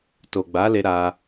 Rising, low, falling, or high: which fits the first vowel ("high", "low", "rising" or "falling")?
low